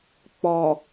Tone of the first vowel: low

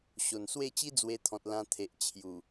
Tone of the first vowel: low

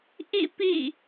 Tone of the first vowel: falling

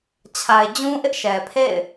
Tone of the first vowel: low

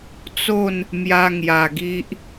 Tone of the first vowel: falling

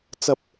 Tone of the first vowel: high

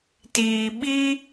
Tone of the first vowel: low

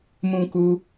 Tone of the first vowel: high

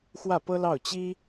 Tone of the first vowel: falling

